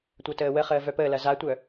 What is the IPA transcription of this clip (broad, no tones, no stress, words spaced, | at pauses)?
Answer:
tʷœtəːwəχəː vœpəːlɐ zatʷœ